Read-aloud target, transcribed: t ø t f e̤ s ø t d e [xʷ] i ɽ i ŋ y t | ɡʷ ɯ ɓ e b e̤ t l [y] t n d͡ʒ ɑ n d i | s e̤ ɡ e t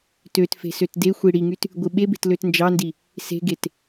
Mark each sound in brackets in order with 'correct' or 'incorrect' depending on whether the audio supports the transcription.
correct, incorrect

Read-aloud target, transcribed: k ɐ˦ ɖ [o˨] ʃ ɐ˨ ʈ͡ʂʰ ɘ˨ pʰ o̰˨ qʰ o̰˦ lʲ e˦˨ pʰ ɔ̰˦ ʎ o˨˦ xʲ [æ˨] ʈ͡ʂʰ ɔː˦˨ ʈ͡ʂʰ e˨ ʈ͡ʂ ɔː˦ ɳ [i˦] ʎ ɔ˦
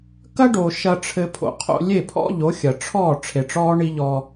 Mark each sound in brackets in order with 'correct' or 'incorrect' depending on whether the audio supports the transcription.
correct, incorrect, correct

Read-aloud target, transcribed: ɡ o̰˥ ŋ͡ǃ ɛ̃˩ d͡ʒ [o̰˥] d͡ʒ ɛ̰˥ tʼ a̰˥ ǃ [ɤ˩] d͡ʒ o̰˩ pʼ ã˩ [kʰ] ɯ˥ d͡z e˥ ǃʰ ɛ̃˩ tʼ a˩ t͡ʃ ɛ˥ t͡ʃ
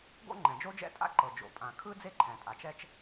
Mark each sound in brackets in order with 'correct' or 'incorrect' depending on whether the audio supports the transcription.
incorrect, correct, correct

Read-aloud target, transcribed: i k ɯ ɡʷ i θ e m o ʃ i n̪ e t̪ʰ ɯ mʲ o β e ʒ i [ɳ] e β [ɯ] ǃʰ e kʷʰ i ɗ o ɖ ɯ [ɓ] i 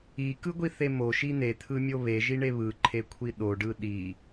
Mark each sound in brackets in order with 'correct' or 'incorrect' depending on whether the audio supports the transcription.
correct, correct, incorrect

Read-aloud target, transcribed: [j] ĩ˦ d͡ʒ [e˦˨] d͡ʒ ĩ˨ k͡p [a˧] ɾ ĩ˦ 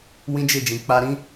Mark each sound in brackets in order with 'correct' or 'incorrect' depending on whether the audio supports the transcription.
incorrect, correct, correct

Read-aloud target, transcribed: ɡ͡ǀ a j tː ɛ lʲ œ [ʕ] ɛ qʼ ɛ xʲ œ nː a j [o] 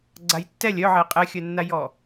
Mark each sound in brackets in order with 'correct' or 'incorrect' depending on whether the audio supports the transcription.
correct, incorrect

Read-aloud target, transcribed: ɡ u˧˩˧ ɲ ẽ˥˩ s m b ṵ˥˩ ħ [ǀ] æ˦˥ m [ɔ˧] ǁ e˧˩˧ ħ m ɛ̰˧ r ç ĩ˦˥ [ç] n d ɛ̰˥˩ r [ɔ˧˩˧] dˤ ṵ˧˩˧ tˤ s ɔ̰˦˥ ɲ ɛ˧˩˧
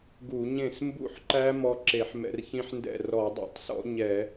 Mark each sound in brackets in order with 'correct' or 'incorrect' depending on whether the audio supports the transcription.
incorrect, correct, incorrect, correct

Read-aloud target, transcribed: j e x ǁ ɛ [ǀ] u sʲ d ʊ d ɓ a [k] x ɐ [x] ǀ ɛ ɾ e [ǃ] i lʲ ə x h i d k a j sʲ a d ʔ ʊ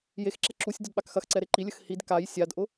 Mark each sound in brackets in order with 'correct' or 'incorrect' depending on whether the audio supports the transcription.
incorrect, correct, correct, correct

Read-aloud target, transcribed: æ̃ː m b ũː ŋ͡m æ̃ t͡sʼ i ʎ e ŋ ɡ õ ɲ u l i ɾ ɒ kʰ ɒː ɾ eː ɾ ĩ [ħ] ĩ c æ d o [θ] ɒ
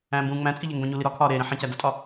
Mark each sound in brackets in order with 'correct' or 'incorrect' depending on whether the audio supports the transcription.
correct, incorrect

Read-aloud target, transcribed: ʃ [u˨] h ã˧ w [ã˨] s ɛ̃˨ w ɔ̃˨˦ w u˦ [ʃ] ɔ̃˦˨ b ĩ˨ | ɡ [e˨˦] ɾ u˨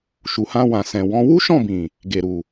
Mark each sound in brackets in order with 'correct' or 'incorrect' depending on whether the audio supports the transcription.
correct, correct, correct, incorrect

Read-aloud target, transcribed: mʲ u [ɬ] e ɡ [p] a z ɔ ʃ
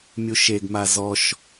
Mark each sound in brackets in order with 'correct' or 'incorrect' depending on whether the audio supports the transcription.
incorrect, incorrect

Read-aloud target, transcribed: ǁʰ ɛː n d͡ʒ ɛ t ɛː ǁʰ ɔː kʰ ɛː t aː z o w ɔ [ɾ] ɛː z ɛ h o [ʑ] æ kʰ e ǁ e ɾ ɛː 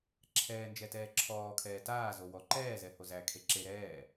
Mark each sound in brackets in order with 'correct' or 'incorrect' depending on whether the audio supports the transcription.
incorrect, incorrect

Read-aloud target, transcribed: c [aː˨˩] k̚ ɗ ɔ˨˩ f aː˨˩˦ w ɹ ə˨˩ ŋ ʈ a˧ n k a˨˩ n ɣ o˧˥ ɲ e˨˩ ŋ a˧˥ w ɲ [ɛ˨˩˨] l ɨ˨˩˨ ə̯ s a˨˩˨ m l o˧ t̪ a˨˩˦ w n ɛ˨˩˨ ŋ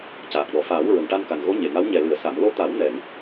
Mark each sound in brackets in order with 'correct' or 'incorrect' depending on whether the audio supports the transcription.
correct, incorrect

